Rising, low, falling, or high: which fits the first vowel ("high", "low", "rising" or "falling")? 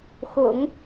low